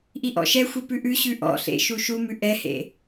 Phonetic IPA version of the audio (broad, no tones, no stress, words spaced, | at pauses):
ʔiʔɔ̰ʃɛxʷi pʉʔʉɕʉ ʔɔ̰ɬḛ ʃuʃumʉ ʔɛhḛ